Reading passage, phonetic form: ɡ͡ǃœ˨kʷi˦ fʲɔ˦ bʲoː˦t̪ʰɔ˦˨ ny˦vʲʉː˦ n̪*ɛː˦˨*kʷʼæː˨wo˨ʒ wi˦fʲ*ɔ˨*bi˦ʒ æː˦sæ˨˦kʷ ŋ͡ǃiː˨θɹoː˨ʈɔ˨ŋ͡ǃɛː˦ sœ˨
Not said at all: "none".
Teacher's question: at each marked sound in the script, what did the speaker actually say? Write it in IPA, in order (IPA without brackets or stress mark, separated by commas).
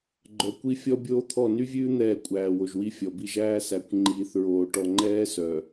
ɛː˦˨, ɔ˨